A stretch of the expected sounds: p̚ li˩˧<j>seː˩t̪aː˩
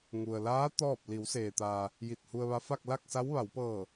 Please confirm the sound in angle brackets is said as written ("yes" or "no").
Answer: no